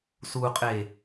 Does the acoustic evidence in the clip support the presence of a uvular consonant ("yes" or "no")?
yes